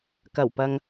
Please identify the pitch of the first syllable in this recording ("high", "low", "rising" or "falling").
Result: low